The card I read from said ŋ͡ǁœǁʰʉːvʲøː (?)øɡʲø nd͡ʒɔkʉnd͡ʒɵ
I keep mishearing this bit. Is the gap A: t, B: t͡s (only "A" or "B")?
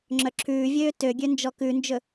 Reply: A